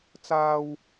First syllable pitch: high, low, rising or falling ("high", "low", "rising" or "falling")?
high